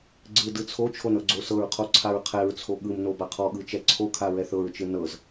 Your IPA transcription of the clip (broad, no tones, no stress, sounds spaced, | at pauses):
ɡ͡ǀ ɯ d ɯ t͡sʰ o t͡ʃʰ o n ɤ ɡ͡ǀ o s ɤ ɹ qʰ o ǀʰ a ɹ qʰ ɛ ɹ t͡sʰ o ɠ ɯ m n o b a qʰ ɔ ɠ ɯ t͡ʃ ɛ ǀʰ o kʰ a ɹ ɛ θ ɤ ɹ t͡ʃ ɯ n ɤ z